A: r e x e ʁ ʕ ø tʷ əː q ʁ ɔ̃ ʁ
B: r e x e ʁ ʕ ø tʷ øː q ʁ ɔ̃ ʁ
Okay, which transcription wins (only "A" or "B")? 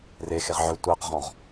A